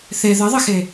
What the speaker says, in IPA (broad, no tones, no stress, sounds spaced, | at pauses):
θ e ð ɘ ðˤ ɘ x e